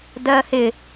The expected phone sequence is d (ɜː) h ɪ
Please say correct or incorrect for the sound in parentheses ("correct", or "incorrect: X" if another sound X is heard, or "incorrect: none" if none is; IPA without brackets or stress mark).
correct